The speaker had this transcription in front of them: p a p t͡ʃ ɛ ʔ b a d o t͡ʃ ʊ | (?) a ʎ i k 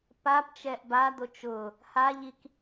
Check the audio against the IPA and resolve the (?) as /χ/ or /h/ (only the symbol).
h